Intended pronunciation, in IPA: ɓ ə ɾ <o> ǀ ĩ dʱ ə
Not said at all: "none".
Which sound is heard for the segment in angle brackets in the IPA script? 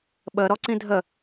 ɔ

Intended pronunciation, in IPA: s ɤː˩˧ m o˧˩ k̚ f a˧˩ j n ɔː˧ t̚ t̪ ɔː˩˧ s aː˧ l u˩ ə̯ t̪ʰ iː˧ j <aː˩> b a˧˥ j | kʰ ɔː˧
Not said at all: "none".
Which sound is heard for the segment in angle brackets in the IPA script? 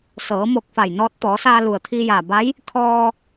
aː˩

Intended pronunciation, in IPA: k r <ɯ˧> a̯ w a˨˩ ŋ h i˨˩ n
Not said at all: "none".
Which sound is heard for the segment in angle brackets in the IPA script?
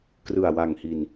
ɯ˨˩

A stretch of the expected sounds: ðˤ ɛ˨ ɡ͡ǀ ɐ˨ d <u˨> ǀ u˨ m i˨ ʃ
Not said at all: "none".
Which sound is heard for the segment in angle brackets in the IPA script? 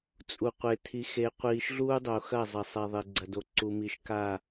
o˨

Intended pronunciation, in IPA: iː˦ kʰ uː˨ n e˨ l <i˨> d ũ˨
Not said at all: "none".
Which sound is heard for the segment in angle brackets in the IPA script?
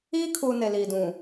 iː˨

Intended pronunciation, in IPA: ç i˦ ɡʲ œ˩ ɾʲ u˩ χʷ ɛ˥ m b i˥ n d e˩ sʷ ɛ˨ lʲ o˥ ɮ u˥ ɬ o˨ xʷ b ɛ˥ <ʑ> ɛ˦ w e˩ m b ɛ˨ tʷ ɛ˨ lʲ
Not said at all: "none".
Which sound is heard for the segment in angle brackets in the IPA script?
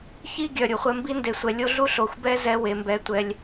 z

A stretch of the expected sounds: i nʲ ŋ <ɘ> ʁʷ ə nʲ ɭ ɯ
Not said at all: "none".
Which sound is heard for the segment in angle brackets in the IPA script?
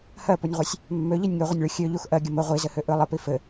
ø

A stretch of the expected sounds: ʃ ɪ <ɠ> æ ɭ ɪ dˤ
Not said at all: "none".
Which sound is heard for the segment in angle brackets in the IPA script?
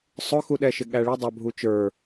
ɠ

